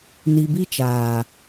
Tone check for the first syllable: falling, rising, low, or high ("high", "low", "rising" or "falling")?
low